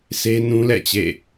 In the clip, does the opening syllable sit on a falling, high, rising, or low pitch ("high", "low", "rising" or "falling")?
high